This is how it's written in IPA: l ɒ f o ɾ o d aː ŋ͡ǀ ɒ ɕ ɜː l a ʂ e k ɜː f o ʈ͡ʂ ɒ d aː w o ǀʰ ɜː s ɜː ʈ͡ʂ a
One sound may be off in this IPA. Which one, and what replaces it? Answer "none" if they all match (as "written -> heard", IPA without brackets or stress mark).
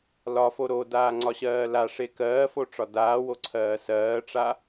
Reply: none